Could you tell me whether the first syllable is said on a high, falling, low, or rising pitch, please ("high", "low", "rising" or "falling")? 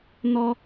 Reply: high